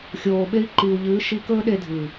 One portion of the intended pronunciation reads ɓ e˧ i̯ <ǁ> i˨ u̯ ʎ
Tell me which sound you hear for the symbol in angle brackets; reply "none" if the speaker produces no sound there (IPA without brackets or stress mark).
ǃ